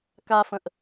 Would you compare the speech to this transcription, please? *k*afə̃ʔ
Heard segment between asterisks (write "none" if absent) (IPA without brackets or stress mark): k